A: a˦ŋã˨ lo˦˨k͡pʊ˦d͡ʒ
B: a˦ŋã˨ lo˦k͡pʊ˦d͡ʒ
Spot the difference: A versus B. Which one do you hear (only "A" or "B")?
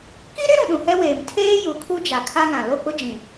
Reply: A